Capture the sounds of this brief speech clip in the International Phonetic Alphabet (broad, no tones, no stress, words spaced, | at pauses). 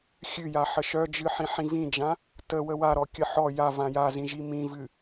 xʲɨja ħəʃœd͡ʒɨħĩ ħĩvĩd͡ʒã | tə wəwaɾɔkʲə ħɔ ja vãjazĩʒi mĩvɨ